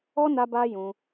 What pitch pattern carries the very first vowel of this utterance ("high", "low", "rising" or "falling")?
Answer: high